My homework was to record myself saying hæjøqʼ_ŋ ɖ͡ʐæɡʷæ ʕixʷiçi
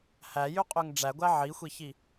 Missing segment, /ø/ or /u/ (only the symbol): ø